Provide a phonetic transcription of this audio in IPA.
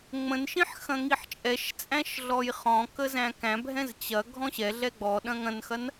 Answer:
ŋ͡m ə̃ n ʃ ĩ ħ x ɐ̃ ŋ i ħ t͡ʃʼ ɛ ʃ t͡sʼ æ̃ ʃ ɮ ɔ j χ ɔ̃ k ə z æ̃ k æ̃ bʱ ɛ̃ z t͡ɕ ɐ ɡʱ ɔ̃ ɕ ɛ ɮ ɛ ɡ͡b ɔ ɗ ɐ̃ ŋ ɐ̃ n x ɐ n

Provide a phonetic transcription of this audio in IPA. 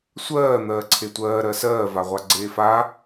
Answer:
sʷ ɜː n̪ ɜː ǀʰ e tʷ ɜː ɾ ɜ s ɜː v a ʁʷ a ɡ͡ǀ eː f a

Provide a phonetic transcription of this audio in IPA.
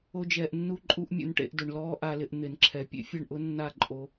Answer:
o˧ d͡ʒ ɛː˨ ʔ nː u˧ ǃʼ u˧ ʔ mʲ ṵ˧ n ʈ ḛ˧ ʔ d ʊ˨ ɳ l ɔː˦ ʔ a˧ l ɪ˧ ʔ n̪ ɪ˨ n ǁʰ ɛ˨ pʲ ḛ˦ fʲ ɛ˦˨ ɳ ʔ ʊ˦ nː a˦˨ ǃʼ o˧

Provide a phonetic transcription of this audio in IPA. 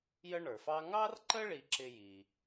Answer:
j ə˥ ɳ ə˞˩ f ɑ˥ ŋ ɑ˥ r ǃ ə˥ ɭ i˧ ǁ ɪ˧ j i˩

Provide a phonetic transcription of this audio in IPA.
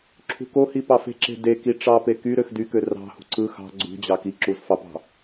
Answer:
ǁʰ ṳ k o h i p ɑ f e̤ ǁ e̤ d e k i ʈ͡ʂ ɑ p e k y ɾ ø x d y k ø r ɑ̤ h ṳ ǀ ɯ x ɑ̤ ɡ͡ǀ ṳ d͡ʑ ɑ k i ǁ u z f ɑ p ɑ̤

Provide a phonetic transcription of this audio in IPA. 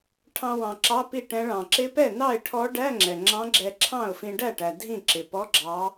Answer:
ʈʰ ɑ̃˧ w ɑ̃˨˩ ǁ ɑ˧˥˧ p i˥˩ ʈ ɛ̃˧˥ ɭ ɑ̃˨˩ ǁ ɪ˧˥ p ɛ˥˩ n ɑ˥˩ ɪ̯ ʈʰ ɔ˧˥ ɖ æ˧˥˧ ŋ͡ǁ ɛ˨˩ ŋ͡ǁ ɑ̃˧˥ ɡ͡ǁ ɛ˧ ǁʰ ɑ̃˥˩ ʊ̯ f ĩ˧ ɖ æ˥˩ ʈ æ˨˩ dʱ ĩ˥˩ ǁ ɪ˨˩ p ɔ˧˥˧ ɡ͡ǁ ɑ˧˥

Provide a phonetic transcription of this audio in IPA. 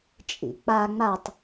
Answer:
t͡ʃʼ ḭ k͡p a ŋ͡m a tˤ

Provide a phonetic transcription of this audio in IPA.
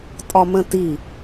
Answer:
tʼ ɒ m ə̃ t i

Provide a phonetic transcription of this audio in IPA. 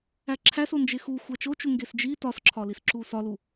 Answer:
æ ǁʰ æ s o n d͡ʒ e x u xʷ æ t͡ʃ o t͡ʃ u ŋ ɡ e s d͡ʒ i t ɒ s ǁʰ ɒ l i s ǁ u s ɒ l u

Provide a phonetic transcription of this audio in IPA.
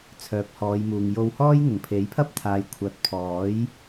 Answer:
t͡sʰ œː˨ p̚ h ɔː˨˧ j m uː˨ ŋ j o˧ w h ɔː˥ j ŋ ʊ˨˩ ŋ pʰ e˨˥ j pʰ ɐ˥ p̚ t̪ʰ aː˨ j kʷʰ ɐ˨˥ t̚ pʰ ɔː˨˥ j

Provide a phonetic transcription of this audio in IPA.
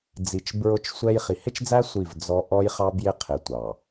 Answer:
d͡z i˨ t͡ʃ b ɹ ʊ˦ t͡ʃ sʷ ɛ˦ j χ i˨ h ɪ˦ t͡ʃ d͡z æ˦ sʷ i˦˨ v d͡z ɔ˦ ʔ ɔ˦ j χ ɑ˦ b j ɪ˦ qʰ ɪ˨ tʷ ɑ˨

